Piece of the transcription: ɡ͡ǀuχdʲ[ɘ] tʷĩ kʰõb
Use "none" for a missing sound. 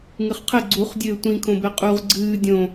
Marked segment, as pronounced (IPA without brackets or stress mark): ɘː